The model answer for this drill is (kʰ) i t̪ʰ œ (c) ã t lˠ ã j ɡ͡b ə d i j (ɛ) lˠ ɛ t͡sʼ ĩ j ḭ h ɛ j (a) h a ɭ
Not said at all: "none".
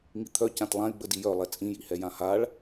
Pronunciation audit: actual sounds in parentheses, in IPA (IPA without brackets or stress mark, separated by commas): ŋ, c, œ, ã